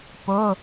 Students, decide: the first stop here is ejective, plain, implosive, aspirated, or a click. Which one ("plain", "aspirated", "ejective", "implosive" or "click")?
plain